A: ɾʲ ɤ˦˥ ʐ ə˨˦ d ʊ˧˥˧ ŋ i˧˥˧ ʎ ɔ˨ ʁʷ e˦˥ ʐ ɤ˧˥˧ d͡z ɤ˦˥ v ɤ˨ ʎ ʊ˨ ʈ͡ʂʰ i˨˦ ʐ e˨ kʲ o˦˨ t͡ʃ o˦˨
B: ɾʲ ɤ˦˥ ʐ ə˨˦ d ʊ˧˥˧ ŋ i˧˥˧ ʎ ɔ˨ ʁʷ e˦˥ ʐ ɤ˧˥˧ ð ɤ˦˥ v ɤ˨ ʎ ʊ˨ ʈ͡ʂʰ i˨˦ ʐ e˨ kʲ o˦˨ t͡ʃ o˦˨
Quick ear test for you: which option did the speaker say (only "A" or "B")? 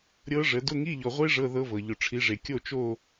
B